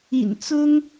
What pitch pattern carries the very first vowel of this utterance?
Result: low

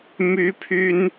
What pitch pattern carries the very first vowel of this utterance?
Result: high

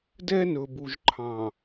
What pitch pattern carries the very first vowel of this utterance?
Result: high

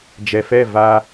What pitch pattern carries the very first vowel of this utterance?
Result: low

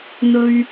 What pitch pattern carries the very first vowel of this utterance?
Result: high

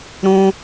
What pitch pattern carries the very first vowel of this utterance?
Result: high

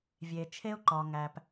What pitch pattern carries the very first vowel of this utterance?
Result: low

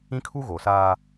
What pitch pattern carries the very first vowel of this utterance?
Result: high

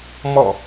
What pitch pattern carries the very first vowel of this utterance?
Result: falling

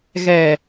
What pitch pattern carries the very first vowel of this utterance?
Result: low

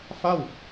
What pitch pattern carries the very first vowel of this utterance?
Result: falling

